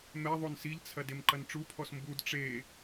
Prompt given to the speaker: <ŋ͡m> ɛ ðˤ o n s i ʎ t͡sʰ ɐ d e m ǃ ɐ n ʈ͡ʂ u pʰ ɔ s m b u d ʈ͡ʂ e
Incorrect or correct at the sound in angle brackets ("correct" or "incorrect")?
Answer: incorrect